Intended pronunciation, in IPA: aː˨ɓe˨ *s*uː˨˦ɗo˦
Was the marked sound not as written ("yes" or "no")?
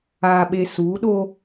no